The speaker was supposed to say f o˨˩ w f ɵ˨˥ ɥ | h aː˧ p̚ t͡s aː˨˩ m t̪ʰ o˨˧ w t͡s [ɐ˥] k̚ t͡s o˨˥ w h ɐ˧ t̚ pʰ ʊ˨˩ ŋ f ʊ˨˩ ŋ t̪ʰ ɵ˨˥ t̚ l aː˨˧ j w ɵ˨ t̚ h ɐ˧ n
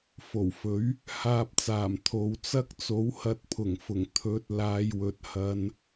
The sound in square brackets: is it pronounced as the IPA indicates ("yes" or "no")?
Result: yes